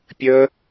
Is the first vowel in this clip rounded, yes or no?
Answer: no